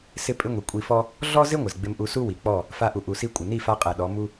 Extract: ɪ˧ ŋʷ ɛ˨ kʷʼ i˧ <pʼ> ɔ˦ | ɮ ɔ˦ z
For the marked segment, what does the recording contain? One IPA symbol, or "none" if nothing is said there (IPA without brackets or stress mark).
f